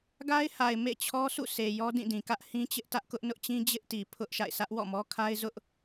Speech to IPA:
ɡ a˦ ɪ̯ h a˨ ɪ̯ m ḛ˦˨ t͡ɕʰ ɔ˦ sʰ ṵ˦˨ sʰ e˨ j ɔ˦ d ĩ˦˨ d ĩ˨ k ä˦ ʔ h ĩ˦ t͡ɕ ɪ˦ ʔ t ä˦ ʔ k ʊ˦ ʔ n ʊ˦ ʔ t͡ɕ ĩ˦ d͡ʑ ɪ˦ ʔ t i˨ pʰ ʊ˦ ʔ ʃ a̰˦˨ ɪ̯ sʰ ä˦ ʔ w ɔ̰˦˨ m ɔ˦ kʰ a˦ ɪ̯ z ʊ˦ ʔ

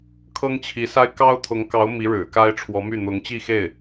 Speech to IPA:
kʰ ɤ˥ ŋ t͡ɕʰ i˧˥ s a˥ ɪ̯ k ɑ˥ ʊ̯ t̪ʰ ʊ˧˥ ŋ k ɑ˧˥ ʊ̯ m i˧˥ ɻ ɻ̩˨˩ k a˥ ɪ̯ ʈ͡ʂʰ w ɔ˧˥ m y˥˩ n̪ ʊ˧˥ ŋ t͡ɕ i˥˧ x e˥˩ ɪ̯

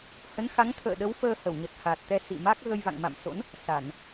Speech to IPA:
h ə˨˦ n x a˨˦ ŋ t̪ʰ ə̰ː˧˨ ɗ ə˨˦ w f əː˧ h ə˧˩ w ɲ ə˨˩ t̚ h a˨˩ t̚ t̪ ɛ˧ s ḭ˧˨ m a˦˥ k̚ ɣ ə˧ j v a̰˧˨ ŋ m a̰˧˨ m s o̰˧˥ n | s a˧˩˨ n

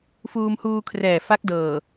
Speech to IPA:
f uː˧ m h uː˧ kʰ r ɛː˨˩ f a˦˥ k̚ d ɤː˨˩

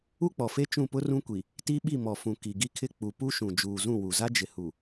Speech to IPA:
u˦ k͡p ɔ˨ f e˦ t͡ʃ ũ˦˨ p ʊ˦ r ũ˦ kʷ i˨ | t i˦ ɓ i˦˨ m ɔ˨ f ũ˨ k i˨ ɡ i˦ kʰ ɪ˦ k͡p u˨ p u˦ ʃ ũ˨ d͡ʒ uː˨ z ũ˦˨ w u˨ z a˦ d͡ʒ ɪ˨ h u˨

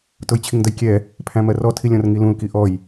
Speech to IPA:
t ʊ j t͡ɕʰ i ŋ d ə j kʲ ɛ | pʰ æ̃ m ɜ r ɔ tʰ i lʲ ɔ̃ r ŋ i l ũ l k i ʔ ɔ j

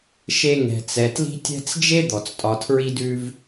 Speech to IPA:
ʃ e˦ ŋ ɛ̤˨ t͡s ɛ˨ t l i̤˥ tʲ ɛ̤˥ t͡s d͡ʒ e˥ d̪ ɔ˩ t͡s tʼ ɒ˨ tʰ ɹ i˦ d ʉ˦ v

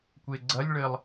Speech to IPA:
kʷ e ɡ͡ǀ ɐ lʲ ɭ ɘ lˠ

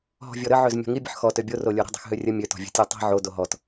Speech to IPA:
ɦ ɔ̤ vʲ ɔ ɾ ə ʕ ø z mʲ ɔ̤ ŋ i bʲ ə̤ ħ x ɔ t ø bʲ o r o lʲ o ɾ ə̤ dˤ i̤ x ɦ ø rʲ ə mʲ ø t ɔ̤ vʲ ə̤ tʲ o tˤ i̤ ʕ o d o ɦ ɔ t

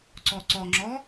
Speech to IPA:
ǀ ɔ ǀ ɔ ŋ͡ǁ ɔ

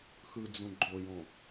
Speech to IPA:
x ɯ d͡z ũ ɡ͡ǃ o j õ

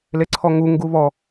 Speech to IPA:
l e ǀʰ ɔ ŋ u ŋ ɡ u β ɔ

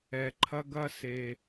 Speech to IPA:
ɛ˨ ǃʰ ɐ˦ ɡ ɐ˦ s e˨

